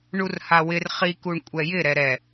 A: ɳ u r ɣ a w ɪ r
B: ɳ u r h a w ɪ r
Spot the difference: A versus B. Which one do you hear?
B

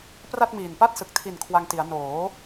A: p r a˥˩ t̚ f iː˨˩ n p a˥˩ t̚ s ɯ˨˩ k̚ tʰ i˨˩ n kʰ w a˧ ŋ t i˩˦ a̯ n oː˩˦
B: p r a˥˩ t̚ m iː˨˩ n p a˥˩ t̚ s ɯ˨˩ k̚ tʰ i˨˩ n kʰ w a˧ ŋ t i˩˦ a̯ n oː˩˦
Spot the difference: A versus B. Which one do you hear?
B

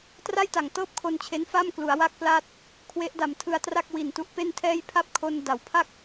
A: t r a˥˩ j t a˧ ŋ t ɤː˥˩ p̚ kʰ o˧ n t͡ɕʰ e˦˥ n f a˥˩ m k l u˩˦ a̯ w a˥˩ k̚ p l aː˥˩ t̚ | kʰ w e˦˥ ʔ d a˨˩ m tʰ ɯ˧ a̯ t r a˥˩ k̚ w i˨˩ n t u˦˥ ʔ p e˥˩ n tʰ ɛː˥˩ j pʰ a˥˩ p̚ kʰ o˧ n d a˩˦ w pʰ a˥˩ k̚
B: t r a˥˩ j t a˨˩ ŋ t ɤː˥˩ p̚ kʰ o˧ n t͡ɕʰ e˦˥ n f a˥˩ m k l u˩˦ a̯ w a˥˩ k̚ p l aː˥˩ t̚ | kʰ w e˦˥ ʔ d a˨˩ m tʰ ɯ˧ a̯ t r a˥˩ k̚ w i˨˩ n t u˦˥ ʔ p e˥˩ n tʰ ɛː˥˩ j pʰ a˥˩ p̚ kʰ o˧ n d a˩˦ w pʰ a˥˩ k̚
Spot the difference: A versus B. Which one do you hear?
B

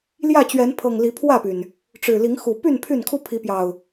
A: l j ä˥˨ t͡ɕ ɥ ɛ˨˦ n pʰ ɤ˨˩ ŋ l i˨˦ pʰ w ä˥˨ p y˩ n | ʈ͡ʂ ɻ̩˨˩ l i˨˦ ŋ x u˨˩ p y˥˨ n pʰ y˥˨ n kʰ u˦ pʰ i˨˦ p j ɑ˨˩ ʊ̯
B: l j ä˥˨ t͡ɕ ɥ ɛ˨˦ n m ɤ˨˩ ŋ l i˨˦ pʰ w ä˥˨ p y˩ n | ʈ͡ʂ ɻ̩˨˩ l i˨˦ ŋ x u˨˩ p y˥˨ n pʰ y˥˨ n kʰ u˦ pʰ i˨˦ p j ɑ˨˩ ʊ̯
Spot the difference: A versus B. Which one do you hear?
A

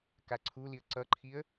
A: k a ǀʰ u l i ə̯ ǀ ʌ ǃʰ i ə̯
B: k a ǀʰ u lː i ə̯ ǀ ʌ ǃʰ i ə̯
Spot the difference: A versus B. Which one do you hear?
A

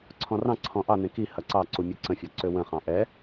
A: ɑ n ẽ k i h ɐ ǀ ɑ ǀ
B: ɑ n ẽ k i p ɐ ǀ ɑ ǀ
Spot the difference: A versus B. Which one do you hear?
A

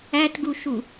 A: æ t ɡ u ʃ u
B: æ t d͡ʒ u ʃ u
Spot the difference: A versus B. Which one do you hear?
A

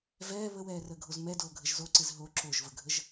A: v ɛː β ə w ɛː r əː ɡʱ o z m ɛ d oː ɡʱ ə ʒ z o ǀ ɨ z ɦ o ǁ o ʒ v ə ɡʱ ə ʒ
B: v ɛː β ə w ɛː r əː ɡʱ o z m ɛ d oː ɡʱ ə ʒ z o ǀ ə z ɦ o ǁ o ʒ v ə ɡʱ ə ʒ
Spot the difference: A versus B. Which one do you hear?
A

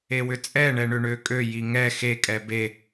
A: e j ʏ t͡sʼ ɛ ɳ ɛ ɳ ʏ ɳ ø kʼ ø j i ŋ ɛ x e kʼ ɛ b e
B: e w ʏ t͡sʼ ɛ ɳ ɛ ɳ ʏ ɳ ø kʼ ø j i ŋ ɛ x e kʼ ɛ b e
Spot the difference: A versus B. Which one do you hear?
B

